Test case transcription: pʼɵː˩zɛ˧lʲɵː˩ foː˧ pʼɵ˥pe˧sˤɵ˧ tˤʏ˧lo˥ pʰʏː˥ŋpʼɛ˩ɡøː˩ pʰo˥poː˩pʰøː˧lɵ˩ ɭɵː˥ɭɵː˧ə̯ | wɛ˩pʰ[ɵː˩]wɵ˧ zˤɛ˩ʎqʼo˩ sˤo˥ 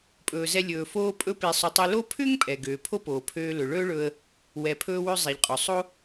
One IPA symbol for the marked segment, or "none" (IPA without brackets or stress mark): ɵː˧